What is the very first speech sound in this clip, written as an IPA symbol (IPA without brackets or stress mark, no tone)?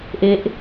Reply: ʔ